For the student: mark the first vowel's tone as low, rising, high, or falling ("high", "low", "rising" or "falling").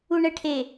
low